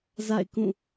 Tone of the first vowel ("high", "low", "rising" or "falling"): falling